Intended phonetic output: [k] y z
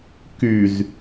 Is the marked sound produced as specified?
yes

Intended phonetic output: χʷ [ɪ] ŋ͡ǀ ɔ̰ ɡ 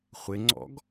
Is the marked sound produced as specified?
yes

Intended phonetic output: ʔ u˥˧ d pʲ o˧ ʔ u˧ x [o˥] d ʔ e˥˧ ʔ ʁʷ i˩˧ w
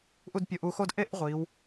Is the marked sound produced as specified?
yes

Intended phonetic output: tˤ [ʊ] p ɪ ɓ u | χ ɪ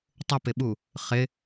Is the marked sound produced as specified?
yes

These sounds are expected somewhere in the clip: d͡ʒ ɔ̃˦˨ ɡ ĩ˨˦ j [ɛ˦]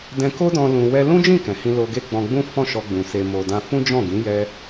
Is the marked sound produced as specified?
yes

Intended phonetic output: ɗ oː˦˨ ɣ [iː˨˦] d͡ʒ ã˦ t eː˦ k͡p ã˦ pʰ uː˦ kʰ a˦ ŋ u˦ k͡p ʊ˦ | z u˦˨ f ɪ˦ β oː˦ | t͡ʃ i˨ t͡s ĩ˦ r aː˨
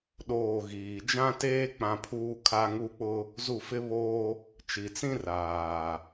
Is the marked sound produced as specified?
no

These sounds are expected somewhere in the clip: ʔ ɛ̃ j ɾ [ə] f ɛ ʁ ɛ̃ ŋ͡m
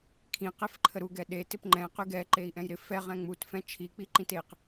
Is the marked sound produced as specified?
no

